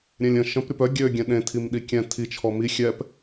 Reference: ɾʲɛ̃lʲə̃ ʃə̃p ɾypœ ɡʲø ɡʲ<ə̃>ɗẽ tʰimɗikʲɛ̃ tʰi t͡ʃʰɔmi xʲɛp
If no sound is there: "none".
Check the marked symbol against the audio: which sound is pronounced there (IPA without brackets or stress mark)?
ɛ̃